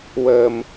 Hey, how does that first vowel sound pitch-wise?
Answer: low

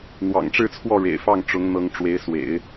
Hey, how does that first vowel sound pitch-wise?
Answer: low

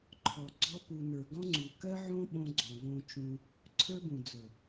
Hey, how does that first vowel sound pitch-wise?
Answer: low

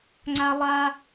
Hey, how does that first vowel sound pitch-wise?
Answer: high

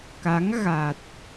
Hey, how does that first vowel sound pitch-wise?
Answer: rising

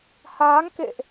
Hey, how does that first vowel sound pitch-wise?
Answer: rising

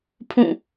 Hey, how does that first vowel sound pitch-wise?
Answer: falling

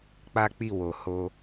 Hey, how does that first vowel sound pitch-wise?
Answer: high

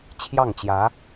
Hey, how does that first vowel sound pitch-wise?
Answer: falling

